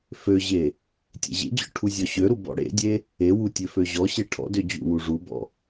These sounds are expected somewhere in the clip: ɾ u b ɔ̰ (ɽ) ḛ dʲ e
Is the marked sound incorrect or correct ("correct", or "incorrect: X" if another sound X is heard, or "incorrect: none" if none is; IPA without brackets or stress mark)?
correct